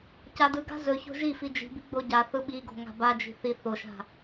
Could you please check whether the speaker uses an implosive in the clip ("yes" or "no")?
yes